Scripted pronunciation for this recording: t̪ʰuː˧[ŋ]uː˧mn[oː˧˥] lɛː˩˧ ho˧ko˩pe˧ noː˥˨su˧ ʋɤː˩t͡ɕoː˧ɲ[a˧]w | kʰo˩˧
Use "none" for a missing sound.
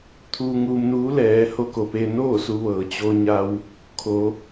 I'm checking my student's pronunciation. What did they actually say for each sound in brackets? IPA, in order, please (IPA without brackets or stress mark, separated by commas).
ŋ, uː˧˥, a˧